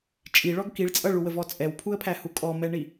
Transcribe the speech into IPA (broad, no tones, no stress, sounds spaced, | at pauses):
t͡ʃʼ i ɭ ɔ ɡ k i ɭ t͡sʼ ʌ ɭ u w ə v ɔ t͡sʼ ɛ w pʰ u ə̯ pʰ æ h u kʼ ɔ m ɛ ɳ i